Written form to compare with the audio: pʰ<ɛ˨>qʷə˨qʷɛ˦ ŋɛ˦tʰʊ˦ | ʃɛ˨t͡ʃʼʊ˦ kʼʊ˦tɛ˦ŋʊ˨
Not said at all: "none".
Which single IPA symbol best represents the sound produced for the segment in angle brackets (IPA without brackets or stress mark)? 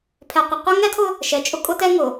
ɛ˨